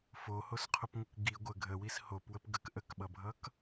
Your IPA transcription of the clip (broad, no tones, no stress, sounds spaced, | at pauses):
f o h o s qʰ o p ŋʷ ʌ k ɡ i ɡʷ ə ɡʱ ə w i s h o p w ə p ɡ ə k ʔ ə k ɓ ʌ bʱ ʌ k